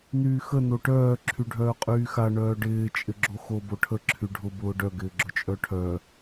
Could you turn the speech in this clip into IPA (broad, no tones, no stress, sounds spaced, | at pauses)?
n yː x ə n o ʈ œː ǁʰ y ɖʱ œː qʼ yː x a ɳ œː ɖ ɪː t͡ʃʼ ɪ ɡ͡ǁ o x o b o ʈʰ ə ǁʰ y ɖʱ ʊ b ʊː ɖ œ ɡ ɪː ɡ͡ǁ ʊ t͡ʃʼ œ ʈʰ œ